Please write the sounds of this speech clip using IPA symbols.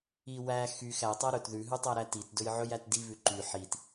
i w æ x y x æ tˤ æ ɾ ɵ t ð ʉ ɦ ʉ tˤ æ ɾ æ t i t d ɵ j ʕ ɵ j æ t d i β ʉ ǃ y ħ i t

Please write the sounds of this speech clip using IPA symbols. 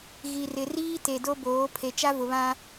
ɣ i˨ r ɪ˨ r iː˦ t e˨ d o˦ b oː˨˦ pʰ e˨ t͡ʃ a˦ v ʊ˨ β ã˦

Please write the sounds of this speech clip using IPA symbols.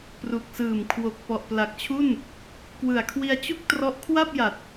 p r u˨˩ k̚ s ɯː˨˩ m kʰ w o˨˩ k̚ p ɔ˨˩ ʔ p l a˨˩ k̚ t͡ɕʰ u˥˩ n | k w ɯ˨˩ a̯ kʰ w i˧ a̯ t͡ɕ u˥˩ k̚ t r ɔ˦˥ ʔ kʰ w a˥˩ p̚ j a˨˩ t̚

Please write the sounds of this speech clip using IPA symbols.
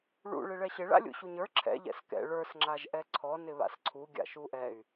ɭ ṵ ɭ ɪ ɭ ɛ ɕ ɪ ɭ a̰ lʲ ṵ ɕ u ɲ ə˞ ǁʰ ɛ̰ ʎ ɛ̰ s k ɛ̰ ɭ ə˞ s ŋ͡ǁ a ʒ ʔ ɛ ǀʰ ɔ n ɪ β a̰ s ǀʰ u ɡʲ a̰ ʃ u ʔ ɛ y̯

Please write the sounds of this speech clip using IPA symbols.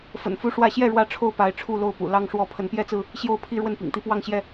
f ə̰˨˩ n f u˦ ʂ w ä˥˨ ɕ j ɛ˥˨ ɻ w ä˦ ʈ͡ʂʰ o˥˨ ʊ̯ p a˨˦ ɪ̯ ʈ͡ʂʰ u˥˨ l o˥˨ ʊ̯ p ṵ˨˩ l ɑ˦ ŋ ʂ w ɔ˥˨ pʰ ə˨˦ n p j ɛ˦ t͡s ɹ̩˥˨ | ɕ j o˥˨ ʊ̯ pʰ i˦ ɻ w ə˥˨ n p ḭ˨˩ ŋ t̪ i˦ p w ɑ˥˨ ŋ ɕ j ɛ˥˨

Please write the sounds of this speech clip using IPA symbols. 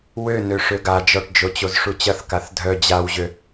w ø n ø ʂ ø ɡ a d͡ʒ ɔ ʈ d͡ʒ o t͡ɕ o z ʂ u t͡ɕ ɐ θ k a θ dʱ œ d͡ʑ a w ʑ ø

